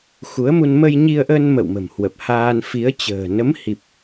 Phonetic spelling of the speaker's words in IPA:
xu˨˦ə̯mu˧n mə˧jɲi˧ə̯ʔə˧n mə̰˧˨wmə̤˨˩mhwə˨˩p̚haː˧n fi˨˦ə̯t͡ɕə̤ː˨˩ nə˨˦mhi˨˩p̚

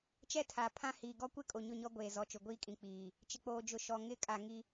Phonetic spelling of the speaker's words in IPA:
t͡ʃɛ˦tʰa˨pʰã˦hiː˨ ɡɔ˦kʷɪ˦kʼo˨ ɲʊ˦˨ɲɔ˦ɡʷeː˨ zɔ˨t͡ʃʊ˨ɡʷiː˦kʼĩ˨ k͡piː˨ | t͡ʃɪ˨k͡poː˨d͡ʒʊ˨ ʃɔ˨ŋɪ˦˨ kʼa˨ŋi˦

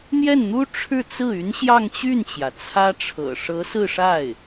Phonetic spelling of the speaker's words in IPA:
n̪jɛ˥˩nn̪u˥ ʈ͡ʂʰɻ̩˥˧t͡sɹ̩˥˩ y˧˥n ɕjɑ˥˧ŋt͡ɕy˥˩nt͡ɕjä˩ t͡sʰä˥ʈ͡ʂʰɤ̰˨˩ ʂɤ˧˥sɹ̩˥˧ʂa˥˩ɪ̯

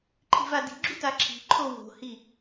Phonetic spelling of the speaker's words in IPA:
ǃʰi̤vadi̤ɡ͡ǁu taǁʰi̤ǃʰo wo̤hi

